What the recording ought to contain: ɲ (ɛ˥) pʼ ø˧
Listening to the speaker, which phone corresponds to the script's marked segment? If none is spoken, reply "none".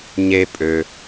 e˥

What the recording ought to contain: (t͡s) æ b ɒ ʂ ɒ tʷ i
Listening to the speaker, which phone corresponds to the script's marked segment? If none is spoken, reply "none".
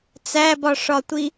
t͡s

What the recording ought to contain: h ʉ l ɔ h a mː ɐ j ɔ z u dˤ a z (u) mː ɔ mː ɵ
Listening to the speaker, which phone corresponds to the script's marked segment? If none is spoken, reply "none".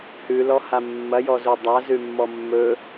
ʉ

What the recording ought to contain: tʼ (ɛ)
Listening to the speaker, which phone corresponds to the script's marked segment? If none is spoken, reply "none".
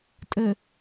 ɘ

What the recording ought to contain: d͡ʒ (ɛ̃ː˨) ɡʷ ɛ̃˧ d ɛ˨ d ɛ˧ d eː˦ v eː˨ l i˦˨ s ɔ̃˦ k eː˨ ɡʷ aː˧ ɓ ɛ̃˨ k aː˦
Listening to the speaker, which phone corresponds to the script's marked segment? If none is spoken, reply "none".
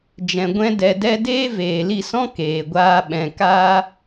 ɛ̃˨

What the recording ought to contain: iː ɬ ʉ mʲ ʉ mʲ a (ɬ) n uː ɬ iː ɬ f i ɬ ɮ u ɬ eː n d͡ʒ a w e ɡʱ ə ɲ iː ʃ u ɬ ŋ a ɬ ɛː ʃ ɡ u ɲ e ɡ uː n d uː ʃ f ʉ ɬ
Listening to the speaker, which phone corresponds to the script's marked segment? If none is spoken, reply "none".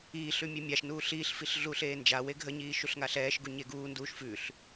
ʃ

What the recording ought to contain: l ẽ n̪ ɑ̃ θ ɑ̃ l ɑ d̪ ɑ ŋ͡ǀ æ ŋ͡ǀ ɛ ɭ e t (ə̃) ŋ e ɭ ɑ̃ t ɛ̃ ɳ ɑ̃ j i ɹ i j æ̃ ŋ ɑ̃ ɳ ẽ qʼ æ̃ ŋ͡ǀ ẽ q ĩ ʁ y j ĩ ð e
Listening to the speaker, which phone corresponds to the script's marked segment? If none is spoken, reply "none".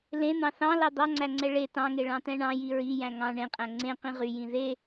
ɑ̃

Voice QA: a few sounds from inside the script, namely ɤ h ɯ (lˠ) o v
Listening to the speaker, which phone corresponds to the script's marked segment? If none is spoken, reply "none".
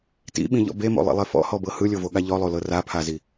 lʲ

